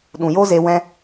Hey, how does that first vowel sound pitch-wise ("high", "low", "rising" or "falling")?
low